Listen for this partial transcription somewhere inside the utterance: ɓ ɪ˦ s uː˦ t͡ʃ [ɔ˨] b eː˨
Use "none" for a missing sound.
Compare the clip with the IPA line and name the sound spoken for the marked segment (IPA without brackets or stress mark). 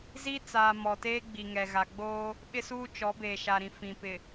ɔ˨˦